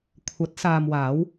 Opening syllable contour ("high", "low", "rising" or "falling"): rising